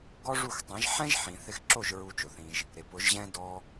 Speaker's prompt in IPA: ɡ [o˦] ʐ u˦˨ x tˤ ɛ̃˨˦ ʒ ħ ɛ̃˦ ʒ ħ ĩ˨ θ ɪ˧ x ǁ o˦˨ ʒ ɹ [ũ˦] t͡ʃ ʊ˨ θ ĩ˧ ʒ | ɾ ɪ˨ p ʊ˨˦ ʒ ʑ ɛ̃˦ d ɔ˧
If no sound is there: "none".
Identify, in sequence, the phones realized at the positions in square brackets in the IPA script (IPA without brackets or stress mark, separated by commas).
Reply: ɔ˦, u˦